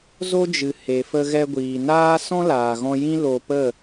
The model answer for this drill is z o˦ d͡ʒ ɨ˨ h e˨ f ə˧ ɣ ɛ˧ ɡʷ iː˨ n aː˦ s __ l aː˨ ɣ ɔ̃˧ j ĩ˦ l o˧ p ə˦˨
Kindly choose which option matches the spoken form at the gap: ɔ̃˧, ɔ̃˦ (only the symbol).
ɔ̃˦